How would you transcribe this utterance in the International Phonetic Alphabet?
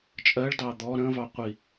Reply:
t͡ʃʼ ɜ ɭ d ɑ d̪ ɔ ɾ ə̃ v ɑ qʷ i

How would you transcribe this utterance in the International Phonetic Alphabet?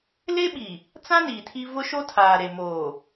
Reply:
l e˦ ɓ i˨ | t͡s ã˦ n iː˨ tʰ i˦ v ʊ˦ ʃ o˦ tʰ aː˨ ɾ e˨ m oː˨

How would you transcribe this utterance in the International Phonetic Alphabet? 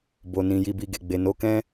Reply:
b o˨ n ĩ˨ j i˨ b i˨ ɡ e˨ ɡ͡b e˨ n o˨˦ k ɛ̃˦

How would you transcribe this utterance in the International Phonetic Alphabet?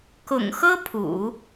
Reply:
k ʊ̰˨˩ ŋ x ɤ˥ pʰ ṵ˨˩˦

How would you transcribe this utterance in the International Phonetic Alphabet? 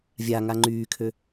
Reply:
vʲ a ŋ a ŋ͡ǃ yː kʰ ø

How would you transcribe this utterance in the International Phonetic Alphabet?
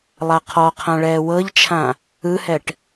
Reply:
lˠ a qʰ ɔ qʰ ã ɭ ɛː w ɤ ʎ t͡ʃʰ ã | ɯ h ɛ ʈ

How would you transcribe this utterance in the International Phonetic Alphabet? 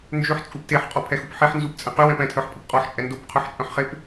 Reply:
n d͡ʒ ø ħ t͡sʼ u p t e ħ qʼ ɔ pʰ ɛ x u p ħ e ħ n z u p t͡sʼ ɛ̃ q y w ɛ̃ p ɛ̃ tʰ œ ħ pʼ ə p qʼ ɔ ħ t͡ʃʼ ɛ n d o p qʰ œ ħ t͡ʃʼ œ̃ ħ χ e p

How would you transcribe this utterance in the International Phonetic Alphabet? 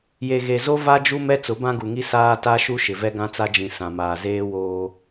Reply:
j e˨ ɣ e˨ z o˦ v a˦ d͡ʒ u˦ m ɛ˦ t͡s ʊ˨˦ b ã˦ ɡ u˨ ŋ i˦ s aː˦ t a˦ ʃ u˦ ʃ ɪ˨ v ɛ˦ ɡ ã˦ t͡s a˦ d͡ʒ ĩ˨ s ã˨ m aː˨ z eː˦ w oː˦

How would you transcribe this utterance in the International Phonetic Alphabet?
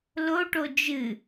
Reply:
l o ʈ o d͡ʒ ɨ

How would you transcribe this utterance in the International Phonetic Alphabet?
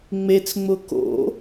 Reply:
ŋ͡m e t͡s ŋ͡m ʊ k o̰

